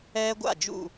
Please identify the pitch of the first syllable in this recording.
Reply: high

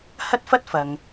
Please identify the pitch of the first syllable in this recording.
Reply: high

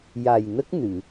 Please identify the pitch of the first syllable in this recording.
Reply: low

